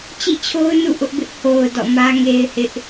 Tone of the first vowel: falling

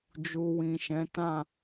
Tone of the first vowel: low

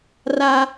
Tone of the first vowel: high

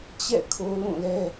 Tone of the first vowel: falling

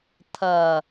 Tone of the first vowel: low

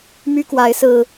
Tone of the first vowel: high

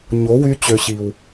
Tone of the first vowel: rising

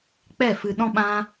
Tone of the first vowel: falling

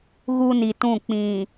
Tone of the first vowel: high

